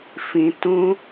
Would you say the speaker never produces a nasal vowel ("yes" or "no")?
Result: no